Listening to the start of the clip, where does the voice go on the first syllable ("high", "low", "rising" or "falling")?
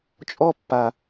high